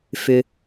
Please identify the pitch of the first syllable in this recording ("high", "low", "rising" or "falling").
low